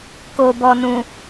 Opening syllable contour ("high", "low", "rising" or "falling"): low